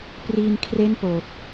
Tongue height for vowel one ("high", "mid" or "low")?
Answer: high